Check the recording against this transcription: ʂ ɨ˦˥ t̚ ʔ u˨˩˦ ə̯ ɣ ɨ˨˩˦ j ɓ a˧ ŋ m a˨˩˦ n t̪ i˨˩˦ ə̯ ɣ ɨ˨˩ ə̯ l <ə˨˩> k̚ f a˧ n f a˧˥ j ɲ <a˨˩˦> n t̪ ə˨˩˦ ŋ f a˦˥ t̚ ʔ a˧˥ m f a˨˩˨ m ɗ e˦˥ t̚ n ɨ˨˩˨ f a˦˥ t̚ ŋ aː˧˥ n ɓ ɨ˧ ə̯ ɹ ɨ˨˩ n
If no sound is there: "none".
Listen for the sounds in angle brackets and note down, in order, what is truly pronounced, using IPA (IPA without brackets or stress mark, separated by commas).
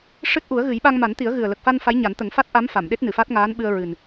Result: ə˨˩, a˨˩˦